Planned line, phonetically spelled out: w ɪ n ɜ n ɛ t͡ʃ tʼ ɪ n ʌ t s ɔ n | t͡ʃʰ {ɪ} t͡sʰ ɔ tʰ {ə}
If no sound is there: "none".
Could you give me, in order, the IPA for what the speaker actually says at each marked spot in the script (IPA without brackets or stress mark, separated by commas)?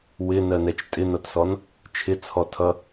ɪ, ʌ